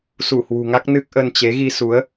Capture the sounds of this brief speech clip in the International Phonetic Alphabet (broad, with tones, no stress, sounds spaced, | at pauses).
s u˧˩ h w ṳ˨˩ ŋ a˦˥ k̚ n ɨ˦˥ k̚ ʔ ə˧ n t͡ɕ e˨˦ ɣ i˧ s u˨˦ ə̯